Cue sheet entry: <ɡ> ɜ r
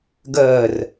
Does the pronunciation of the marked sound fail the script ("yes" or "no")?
no